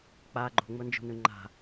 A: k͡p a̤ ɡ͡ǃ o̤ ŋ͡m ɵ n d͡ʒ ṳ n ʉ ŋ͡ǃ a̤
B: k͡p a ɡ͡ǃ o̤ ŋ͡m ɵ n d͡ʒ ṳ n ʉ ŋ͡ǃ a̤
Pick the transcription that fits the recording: B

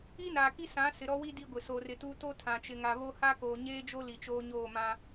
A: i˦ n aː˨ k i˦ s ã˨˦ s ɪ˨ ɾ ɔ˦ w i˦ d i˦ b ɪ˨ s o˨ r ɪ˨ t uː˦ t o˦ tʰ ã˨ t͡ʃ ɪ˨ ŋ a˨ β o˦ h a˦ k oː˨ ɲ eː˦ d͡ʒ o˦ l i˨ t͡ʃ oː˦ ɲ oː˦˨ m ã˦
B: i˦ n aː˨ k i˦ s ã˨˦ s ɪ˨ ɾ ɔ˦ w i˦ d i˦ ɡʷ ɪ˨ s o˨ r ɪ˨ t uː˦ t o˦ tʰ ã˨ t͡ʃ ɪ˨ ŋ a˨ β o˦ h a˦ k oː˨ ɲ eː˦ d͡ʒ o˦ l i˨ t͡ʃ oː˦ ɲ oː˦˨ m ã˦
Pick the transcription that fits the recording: B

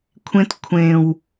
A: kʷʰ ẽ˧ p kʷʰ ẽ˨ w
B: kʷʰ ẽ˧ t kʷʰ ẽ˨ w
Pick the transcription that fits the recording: B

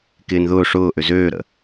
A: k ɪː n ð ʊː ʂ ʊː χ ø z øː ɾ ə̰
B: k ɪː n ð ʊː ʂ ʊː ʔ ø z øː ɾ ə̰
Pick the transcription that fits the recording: B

